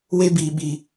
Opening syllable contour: high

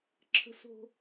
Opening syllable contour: high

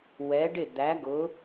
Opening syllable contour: rising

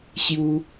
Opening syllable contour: high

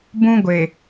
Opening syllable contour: high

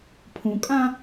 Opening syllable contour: low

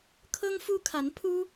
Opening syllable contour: high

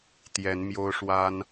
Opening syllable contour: rising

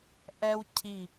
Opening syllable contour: high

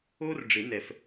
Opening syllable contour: high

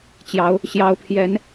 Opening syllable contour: rising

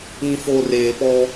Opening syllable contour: low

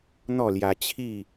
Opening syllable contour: falling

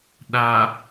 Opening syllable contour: low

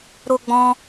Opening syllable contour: high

